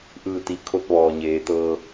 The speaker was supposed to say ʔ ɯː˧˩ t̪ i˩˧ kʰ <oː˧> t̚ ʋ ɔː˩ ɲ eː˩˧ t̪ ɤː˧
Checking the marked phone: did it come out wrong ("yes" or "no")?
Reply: yes